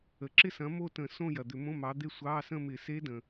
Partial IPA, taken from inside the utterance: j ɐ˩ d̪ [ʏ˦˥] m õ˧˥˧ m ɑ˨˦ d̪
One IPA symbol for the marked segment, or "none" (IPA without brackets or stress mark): ʏ˧˩˧